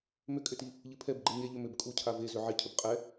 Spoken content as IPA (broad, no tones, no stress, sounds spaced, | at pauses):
m ʏ kʼ ʏ t i | ʎ ɨ pʰ ɛ b ɡ͡ǃ ɨ ɲ e ʎ ʏ m ʏ b kʼ u cʰ a v e z ʏ ʕ i cʰ ʏ b qʼ ɛ